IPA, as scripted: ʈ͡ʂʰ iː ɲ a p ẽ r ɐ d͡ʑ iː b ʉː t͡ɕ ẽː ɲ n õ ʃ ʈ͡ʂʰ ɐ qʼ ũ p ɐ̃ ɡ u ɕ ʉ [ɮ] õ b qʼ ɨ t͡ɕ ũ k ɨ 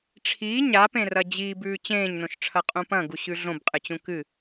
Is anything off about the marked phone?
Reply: no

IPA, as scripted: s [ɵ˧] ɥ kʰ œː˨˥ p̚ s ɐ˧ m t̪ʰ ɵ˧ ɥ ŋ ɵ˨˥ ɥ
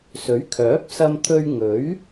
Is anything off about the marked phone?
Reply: yes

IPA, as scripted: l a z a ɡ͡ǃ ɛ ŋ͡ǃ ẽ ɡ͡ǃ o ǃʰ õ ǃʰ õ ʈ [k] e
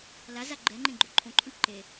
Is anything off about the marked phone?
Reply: yes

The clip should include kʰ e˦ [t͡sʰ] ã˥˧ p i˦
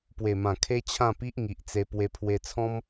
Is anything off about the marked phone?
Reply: yes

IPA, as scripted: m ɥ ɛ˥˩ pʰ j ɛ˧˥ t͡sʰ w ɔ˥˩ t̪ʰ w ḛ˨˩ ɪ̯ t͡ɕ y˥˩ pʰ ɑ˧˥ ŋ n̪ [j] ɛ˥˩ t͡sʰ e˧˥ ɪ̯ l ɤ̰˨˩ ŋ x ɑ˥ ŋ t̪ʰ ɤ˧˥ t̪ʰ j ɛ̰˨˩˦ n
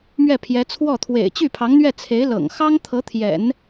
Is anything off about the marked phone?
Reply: yes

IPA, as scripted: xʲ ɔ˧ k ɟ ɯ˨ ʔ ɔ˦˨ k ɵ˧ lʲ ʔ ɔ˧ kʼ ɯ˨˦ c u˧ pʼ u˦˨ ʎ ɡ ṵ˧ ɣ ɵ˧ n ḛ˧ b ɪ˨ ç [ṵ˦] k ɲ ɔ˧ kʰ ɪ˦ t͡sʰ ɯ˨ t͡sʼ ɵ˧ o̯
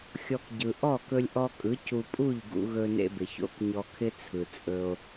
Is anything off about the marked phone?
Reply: yes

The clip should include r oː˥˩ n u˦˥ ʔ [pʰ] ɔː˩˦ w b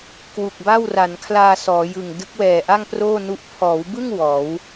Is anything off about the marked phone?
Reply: no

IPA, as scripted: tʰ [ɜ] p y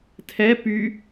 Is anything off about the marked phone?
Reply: yes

